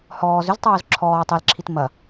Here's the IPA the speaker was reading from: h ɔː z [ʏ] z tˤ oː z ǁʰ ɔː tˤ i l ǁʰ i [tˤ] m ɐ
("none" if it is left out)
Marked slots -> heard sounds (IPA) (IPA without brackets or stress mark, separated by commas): ʏ, t